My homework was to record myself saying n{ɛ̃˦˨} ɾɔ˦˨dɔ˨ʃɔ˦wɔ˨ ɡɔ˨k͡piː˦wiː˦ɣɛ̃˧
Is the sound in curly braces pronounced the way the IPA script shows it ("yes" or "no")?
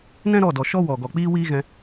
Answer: no